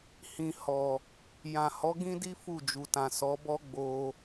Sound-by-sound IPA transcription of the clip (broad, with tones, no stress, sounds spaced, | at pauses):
h ĩ˨ h ɔ˨ | j ã˨ h ɔ˨˦ ɡ ĩ˦ d i˦ f u˦˨ d͡ʒ u˨ t ã˨ s ɔ˨˦ b ɔ˦ ɡ͡b o˧